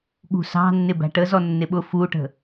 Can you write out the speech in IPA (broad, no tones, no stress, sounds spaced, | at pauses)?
ɠ ṳ s ɑ̤ nː ɪ b æ̤ ʈ ə z ɔ nː ɪ ɓ ʊ f u ʈ ə̤